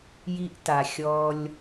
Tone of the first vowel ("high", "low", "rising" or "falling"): high